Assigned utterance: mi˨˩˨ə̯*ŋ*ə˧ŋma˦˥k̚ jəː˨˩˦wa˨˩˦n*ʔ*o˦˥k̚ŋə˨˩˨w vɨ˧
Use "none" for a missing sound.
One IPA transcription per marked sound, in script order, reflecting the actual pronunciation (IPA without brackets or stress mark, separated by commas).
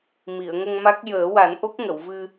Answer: ŋ, ʔ